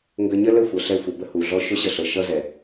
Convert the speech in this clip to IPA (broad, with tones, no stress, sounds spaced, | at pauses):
ŋ ɡ ə˧ ɲ ə˦ l ə˦˨ xʷ ʌ˨ ɬ ɛ˧ xʷ ə˨ b ə˦ h u˨ ɮ ɔ˦ ʃ ʊ˦ ɕ ə˧ ɬ ɤ˨ ʃ ʌ˧ z ɛ˨